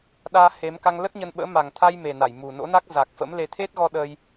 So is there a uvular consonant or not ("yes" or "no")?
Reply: no